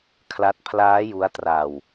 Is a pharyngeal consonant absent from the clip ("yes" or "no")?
yes